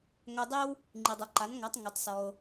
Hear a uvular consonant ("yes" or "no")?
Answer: no